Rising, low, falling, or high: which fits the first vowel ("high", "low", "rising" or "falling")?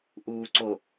low